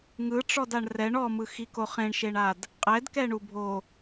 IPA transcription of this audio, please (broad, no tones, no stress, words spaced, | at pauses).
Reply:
ŋɯʈ͡ʂɔdaɳ rɛɳ ɔmɯxiko χẽɳʃeɳad | qʼɛdkɛɳubʱo